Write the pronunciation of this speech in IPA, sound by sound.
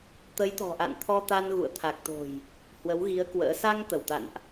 t̪ ə˨˦ j t̪ ɔ̤˨˩ ʔ a̰˧˨ n t̪ʰ ɔ˧ t̪ a˧ n ɣ ṵ˧˨ ə̯ t̪ʰ a˨˩ k̚ t̪ o̤˨˩ j | h w ə˨˦ w ɣ i˨˦ ə̯ k w ə̰ː˧˥ s a˧ ŋ t̪ ə˧˩ w t̪ a̰˧˨ n ʔ

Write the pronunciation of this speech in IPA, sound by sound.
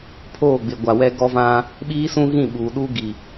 pʰ oː˦˨ ɡ͡b ɪ˨ ɡʷ a˨ w ɛ˦ ɡ ɔ˦ v ã˦ | ɓ iː˦ s ũ˦ ɣ ĩ˦˨ ɓ uː˨ ɗ uː˦ ɡ i˨

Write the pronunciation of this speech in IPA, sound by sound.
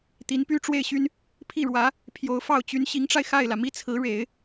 t̪ i˧˥ n p y˥ ʈ͡ʂ w e˥˩ ɪ̯ ɕ y˥ n | pʰ i˥˩ ɻ w ä˧˥ | pʰ j o˧˥ ʊ̯ f ɑ˥˩ ʊ̯ t͡ɕ y˧˥ n ɕ i˧˥ ŋ ʈ͡ʂ a˧ ɪ̯ x a˥˩ ɪ̯ l ä˩ m i˥˩ t͡sʰ ɹ̩˧˥ ɻ e˨˩˦ ɪ̯

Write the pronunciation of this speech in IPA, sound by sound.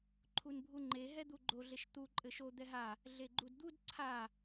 ǃʰ u n bʱ u ŋ͡ǃ e ɦ ɛ d̪ u ɡ͡ǃ o ɮ e ʃ t̪ u ǃʼ ɘ ʃ o d̪ ɛ ɦ a | ɮ e ɡ͡ǃ u d d̪ u d ǀʰ a

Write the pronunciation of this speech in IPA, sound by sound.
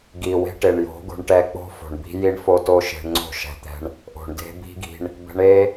ɡ i˨ w e̤˦ ʈ e˨ ɳ j o̤˨˦ ɡ o̤˧ ɳ ʈ ɛ˧ k͡p o̤˦ f o̤˨ ɳ b i̤˦ j i˦ ɳ f o˦ t o˦ ʃ e̤˧ ɳ ŋ͡ǀ o̤˦˨ ʃ ɛ̤˦ t̪ ɛ̤˦ ɳ | ʔ o̤˨ ɳ d e̤˦ b i̤˦ ɡ i̤˧ ɳ | b ɛ̤˧ ɳ e˦

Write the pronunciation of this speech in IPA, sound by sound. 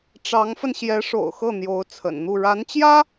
ʈ͡ʂ ɑ˧˥ ŋ f ə˧ n ɕ j ɛ˧˥ ʂ o̰˨˩ ʊ̯ x ɤ˥˩ n̪ j o˧˥ ʊ̯ t͡sʰ ə̰˨˩ n n̪ u˥˩ ɻ a˧˥ n t͡ɕ j ä˥

